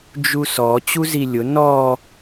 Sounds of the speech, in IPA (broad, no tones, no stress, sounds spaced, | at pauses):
d͡ʒ u s ɔ t͡ɕ u z i lʲ ʊ n ɔ